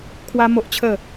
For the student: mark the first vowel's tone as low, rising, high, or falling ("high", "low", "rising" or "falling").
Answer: high